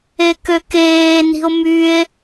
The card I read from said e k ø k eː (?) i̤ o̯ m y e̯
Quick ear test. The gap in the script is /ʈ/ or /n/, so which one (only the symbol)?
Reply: n